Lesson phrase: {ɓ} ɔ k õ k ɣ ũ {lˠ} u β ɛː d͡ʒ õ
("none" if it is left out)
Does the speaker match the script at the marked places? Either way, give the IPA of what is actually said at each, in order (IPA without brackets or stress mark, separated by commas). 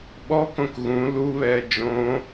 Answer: ɓ, l